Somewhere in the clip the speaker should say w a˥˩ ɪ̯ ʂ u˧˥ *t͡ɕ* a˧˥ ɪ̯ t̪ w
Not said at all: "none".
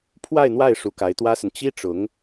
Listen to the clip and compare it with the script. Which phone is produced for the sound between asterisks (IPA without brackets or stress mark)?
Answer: k